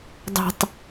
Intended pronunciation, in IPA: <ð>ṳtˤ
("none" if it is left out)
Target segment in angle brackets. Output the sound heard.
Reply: dˤ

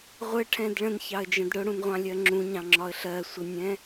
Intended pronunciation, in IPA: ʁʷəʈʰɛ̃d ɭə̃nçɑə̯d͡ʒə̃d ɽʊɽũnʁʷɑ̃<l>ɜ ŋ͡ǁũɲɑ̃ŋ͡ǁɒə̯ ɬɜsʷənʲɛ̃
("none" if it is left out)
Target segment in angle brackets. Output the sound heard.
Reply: lʲ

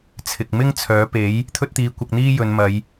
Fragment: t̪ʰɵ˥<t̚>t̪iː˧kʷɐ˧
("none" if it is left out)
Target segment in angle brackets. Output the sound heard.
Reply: t̚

